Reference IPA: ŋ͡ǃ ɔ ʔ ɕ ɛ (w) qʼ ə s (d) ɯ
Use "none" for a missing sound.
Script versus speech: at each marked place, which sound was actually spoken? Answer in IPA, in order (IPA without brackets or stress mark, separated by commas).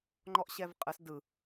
v, d